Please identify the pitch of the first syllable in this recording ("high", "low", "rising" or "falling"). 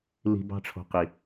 low